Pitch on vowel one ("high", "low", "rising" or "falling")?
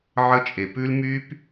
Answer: high